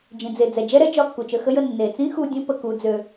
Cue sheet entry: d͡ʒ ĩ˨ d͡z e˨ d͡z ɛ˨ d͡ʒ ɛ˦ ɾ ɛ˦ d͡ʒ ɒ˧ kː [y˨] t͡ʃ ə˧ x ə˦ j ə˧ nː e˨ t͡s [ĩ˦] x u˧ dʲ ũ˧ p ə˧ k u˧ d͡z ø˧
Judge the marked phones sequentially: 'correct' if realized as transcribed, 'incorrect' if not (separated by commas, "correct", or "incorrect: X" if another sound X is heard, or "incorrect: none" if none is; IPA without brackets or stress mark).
incorrect: u˨, correct